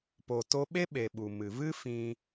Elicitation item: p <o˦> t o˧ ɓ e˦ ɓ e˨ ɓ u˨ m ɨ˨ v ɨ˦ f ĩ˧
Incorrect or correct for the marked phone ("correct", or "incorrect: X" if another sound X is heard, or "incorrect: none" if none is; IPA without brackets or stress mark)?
incorrect: o˨